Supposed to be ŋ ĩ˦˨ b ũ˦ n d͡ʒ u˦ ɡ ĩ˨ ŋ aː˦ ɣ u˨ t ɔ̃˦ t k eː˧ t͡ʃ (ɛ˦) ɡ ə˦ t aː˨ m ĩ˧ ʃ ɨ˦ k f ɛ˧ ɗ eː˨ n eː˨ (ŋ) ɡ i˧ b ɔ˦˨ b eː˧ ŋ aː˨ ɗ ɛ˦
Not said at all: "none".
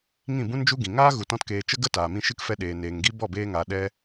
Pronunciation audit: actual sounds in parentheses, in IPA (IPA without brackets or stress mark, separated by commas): ə˦, ŋ